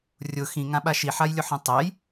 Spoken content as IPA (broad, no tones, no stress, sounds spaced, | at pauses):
rʲ ʊ x ĩ ŋ ã ɓ a ʃ i ħ a j lʲ ʊ ħ ĩ tˤ ɛ j